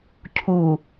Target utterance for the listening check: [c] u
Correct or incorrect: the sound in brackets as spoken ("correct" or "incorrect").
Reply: incorrect